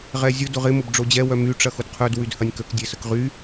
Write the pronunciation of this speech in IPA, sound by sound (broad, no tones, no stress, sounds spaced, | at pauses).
ʁ ɛ zʲ ʊ d ʊ ʁ ɪ m ʊ b ɖ͡ʐ o d͡ʑ ɛ w œ m y ʈ͡ʂ ɐ x ʊ d qʰ œ d w y d h ɐ nʲ k ə k dʲ e s ə k ʁ y